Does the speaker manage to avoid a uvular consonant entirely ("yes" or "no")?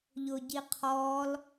no